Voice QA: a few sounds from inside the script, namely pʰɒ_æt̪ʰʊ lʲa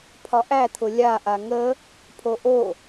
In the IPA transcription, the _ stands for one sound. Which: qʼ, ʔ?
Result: ʔ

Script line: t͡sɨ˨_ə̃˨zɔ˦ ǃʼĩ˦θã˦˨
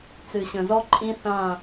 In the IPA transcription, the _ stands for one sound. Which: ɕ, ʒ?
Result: ɕ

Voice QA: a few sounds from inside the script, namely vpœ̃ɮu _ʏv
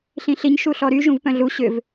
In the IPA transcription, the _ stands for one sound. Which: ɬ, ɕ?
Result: ɕ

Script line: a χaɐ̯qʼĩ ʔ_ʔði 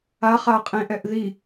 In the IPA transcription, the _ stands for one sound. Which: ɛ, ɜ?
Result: ɛ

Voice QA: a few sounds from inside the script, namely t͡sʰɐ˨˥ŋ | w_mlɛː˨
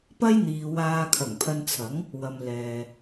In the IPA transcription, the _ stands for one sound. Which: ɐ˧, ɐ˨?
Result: ɐ˨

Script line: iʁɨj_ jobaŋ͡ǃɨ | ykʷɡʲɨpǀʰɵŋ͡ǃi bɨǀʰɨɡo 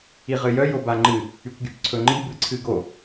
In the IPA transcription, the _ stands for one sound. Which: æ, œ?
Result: œ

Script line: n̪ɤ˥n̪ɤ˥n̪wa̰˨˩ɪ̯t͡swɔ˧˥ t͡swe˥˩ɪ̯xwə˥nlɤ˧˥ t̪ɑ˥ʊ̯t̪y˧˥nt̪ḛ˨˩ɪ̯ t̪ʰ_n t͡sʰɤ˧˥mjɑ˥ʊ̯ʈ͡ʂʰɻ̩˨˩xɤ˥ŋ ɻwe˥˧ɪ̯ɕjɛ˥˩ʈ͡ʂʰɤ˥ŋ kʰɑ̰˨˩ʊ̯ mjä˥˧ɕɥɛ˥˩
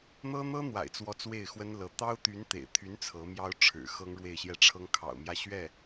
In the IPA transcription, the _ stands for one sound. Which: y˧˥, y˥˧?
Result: y˧˥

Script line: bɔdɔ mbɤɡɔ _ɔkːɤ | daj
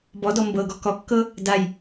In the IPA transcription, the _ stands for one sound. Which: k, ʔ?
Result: k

